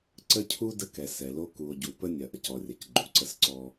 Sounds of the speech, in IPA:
ǀ ə˦ cʰ u˦ d ə˦ k ɛ˨ s ɛ˨ l o˦ k u˨ o̯ ɟ u˨ p ə˦ nʲ ɐ˨ ʔ ɐ˨ c ɔ˨ rʲ ɐ˨ c ɡ͡ǃ u˨ ǀ ə˦ s ǀ ɔ˦

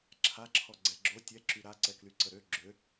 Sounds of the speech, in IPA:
ǁʰ a ǁʰ ɔ ɡ͡ǀ ɛ ɡ͡ǁ o tʲ ɛ ǁ y ɾ a ǀ ɛ k l y ǀ ə ɾ ø ɡ͡ǁ ø

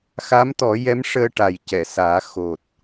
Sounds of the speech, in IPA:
x a˧˥ m t̪ ɔ˨˩˦ j ɛ˧˥ m ʂ əː˧ ʈ a˨˩ j c ɛ˨˩˨ s aː˨˩˦ x o˨˩ t̚

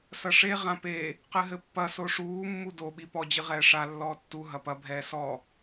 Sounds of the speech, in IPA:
s ɐ ʂ e ʁ ã p e | q ɨ ɦ ɘ pː ɐ s o ʂ uː mː u d o ɓ i p ɔ d͡ʑ ɨ ʁ ɛː ʂ a lː ɔː tː u ɦ ɐ p ɐ bʱ ɛː s ɔ

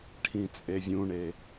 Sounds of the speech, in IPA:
ʈʰ ĩ t͡sʼ e vʲ ũ ɳ e

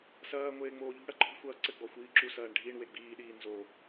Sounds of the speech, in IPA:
s ɐː ŋʷ eː ŋ͡m oː ʎ ṳ ɽ ɐ ǃ ɔ̤ xʷ ɐː ǀ ɘ ɡ͡b ɔ xʷ iː ǁ u s ɐː ɳ ɖʱ i ɳ w e ɡ͡b iː ɗ iː n z o

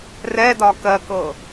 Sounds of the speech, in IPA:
r ɛ d ɒ k ɜ k ɤ

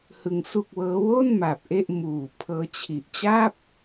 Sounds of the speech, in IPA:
h ɯ˧ ŋ s u˥˩ k̚ w ɤː˦˥ w o˥˩ n m a˨˩ p̚ ʔ e˥˩ ʔ m uː˨˩ pʰ ɤː˦˥ t͡ɕʰ i˨˩ ʔ t͡ɕ a˥˩ p̚

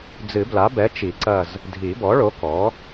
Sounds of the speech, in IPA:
d͡z ɨ˨˩˦ b l a˩˥ b ɛ˩˥ t͡ʃ i˨˩˦ ǀ ɐ˦˨ z | dʱ i˨˩˦ b ɔ˩˥ ɭ o˩˥ k ɔ˩˥

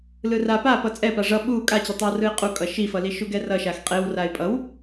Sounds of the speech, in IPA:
l ɯ r a p a p ʌ t͡sʼ ɛ p a ʐ ʌ ɓ u kʼ a t͡ɕ e tˤ ɛ w r ɯ ɪ̯ qʼ u kʼ ʌ ʃ i f ʌ l i ʃ u ɡ ɛ r ʌ ʃ a x qʼ e w r a ɪ̯ pʼ ʌ w

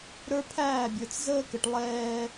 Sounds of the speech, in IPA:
ɾ ə˞˦ pʰ æː˦˨ bʲ ə˞˨ t͡s z əː˦ k ə˨ ʈ lˠ ɛː˦

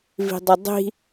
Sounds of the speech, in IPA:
v i̤ dˤ ɘ dˤ i̤

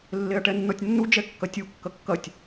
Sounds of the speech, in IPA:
lː e ɐ̯ ʈ ɛ nː ɔ tʲ nː u d͡ʒ ɛ kː ɐ tʲ u kː ɐ kː ɐ tʲ

